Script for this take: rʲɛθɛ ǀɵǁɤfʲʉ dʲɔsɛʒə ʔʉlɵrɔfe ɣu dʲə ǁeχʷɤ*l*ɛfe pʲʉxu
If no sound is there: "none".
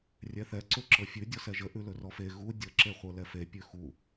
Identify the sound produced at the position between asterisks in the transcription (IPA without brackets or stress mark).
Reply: l